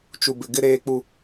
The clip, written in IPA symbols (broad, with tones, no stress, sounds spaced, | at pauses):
t͡ʃ u˨ b ɪ˨ ɡ ɪ˦ ɾ eː˦ k͡p u˦